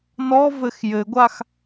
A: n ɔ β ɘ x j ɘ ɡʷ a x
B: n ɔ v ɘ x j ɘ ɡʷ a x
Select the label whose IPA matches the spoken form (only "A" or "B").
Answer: B